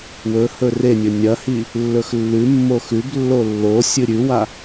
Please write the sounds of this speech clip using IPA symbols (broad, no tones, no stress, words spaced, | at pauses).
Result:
wɵ hɵrenʲɵ nʲɐhi | lːɵxlːʉmːo xʉblːo lːo sʲɨɾʲʉwa